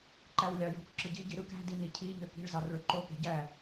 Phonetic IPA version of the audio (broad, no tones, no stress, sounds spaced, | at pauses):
ǃ æ w lʲ ɑ j o̤ k ǁ ɯ ɟ i ɟ i ɾ ɯ k æ̤ d i n i cʰ i ʎ ø k i̤ ɭ z ɑ r ɭ ø ǃ o k e̤ ɟ æ